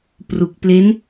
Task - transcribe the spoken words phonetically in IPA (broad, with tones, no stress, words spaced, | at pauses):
pru˨˩k̚ple˦˥n